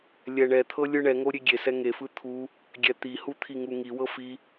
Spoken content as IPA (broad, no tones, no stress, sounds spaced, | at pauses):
lʲ ɛ ɳ ɛ t̪ʰ ɤ lʲ ɯ ɳ ɛ ŋ o ɾʲ e ɡʲ e s ɛ ŋ e f ɯ t̪ʰ u | ɡʲ ɛ t̪ i h u t̪ʰ i ŋ u ŋ i w ɤ f i